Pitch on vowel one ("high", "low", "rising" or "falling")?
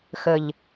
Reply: low